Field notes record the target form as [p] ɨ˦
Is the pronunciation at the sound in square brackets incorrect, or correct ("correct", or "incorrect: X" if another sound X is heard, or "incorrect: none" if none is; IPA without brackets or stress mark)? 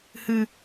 incorrect: h